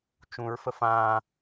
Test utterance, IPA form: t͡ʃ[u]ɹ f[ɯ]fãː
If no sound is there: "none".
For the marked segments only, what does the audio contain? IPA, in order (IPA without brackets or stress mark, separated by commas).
ũ, ə